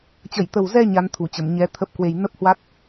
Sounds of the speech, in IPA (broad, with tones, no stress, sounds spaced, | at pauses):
t͡ɕ ə˧˩ j t̪ ə˨˩ w z ɛ˧ ɲ a˨˦ n t̪ʰ u˧˩ t͡ɕ ə˧˩ m ɲ ɛ˧ t̪ʰ ə˦˥ p̚ k w e˧ j n ə˦˥ p̚ h w a˦˥ t̚